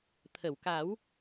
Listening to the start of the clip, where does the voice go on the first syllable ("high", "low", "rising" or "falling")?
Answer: low